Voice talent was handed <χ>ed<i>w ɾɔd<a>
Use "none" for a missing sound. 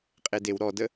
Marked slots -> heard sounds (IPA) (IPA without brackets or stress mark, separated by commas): qʼ, e, ə